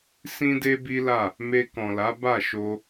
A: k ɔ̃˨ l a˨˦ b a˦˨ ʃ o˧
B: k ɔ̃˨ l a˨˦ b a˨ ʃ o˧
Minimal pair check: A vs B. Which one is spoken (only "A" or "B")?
A